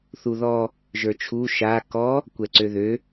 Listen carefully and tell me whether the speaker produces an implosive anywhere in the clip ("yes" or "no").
no